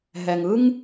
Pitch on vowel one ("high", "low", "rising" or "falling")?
low